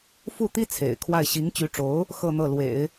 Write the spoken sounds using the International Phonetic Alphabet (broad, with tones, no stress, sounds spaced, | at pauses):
f u˥˩ t̪ i˥ t͡sʰ ḛ˨˩ ɪ̯ kʰ w a˥˩ ɪ̯ ɕ i˧˥ ŋ t͡ɕ y˧˥ ʈ͡ʂ o˧˥ ʊ̯ | x ɤ˥˧ n̪ ɤ˥˩ l w ḛ˨˩˦ ɪ̯